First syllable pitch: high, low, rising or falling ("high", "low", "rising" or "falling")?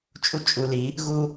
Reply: high